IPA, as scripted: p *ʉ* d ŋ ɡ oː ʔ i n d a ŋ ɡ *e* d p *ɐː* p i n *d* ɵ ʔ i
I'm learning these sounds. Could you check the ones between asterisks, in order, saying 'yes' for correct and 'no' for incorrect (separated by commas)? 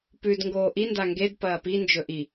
yes, yes, yes, no